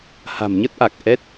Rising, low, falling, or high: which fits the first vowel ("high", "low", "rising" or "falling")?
low